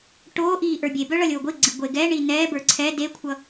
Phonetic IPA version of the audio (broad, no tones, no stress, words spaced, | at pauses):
ʈoːʔiː ʔə˞bʲebœ ɭʌlʲoːɡʷiɡ͡ǀi ɡʷeɡɛɳi nɛːbə˞ ǀʰɛ dekʷʰʌ